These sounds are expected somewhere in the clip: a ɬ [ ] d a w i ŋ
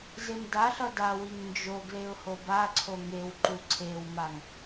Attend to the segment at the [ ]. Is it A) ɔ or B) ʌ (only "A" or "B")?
B